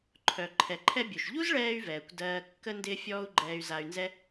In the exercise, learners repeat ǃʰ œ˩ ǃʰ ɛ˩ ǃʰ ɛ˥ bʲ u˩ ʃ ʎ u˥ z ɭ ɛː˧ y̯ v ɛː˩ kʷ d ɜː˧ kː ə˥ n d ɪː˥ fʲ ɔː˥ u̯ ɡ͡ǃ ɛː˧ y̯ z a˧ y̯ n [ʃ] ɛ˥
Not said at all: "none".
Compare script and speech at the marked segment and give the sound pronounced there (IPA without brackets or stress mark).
z